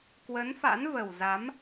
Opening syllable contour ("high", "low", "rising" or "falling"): rising